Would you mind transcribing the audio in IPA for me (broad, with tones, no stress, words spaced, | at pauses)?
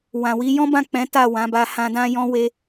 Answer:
wã˨wi˨˦ jɔ̃˦bã˦˨ k͡pɛ̃˨˦ ta˦˨wã˨˦ba˧ hã˧dã˦jɔ̃˦ we˦